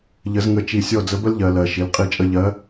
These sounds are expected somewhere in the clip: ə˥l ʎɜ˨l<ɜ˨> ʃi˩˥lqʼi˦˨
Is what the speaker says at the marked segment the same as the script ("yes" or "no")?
yes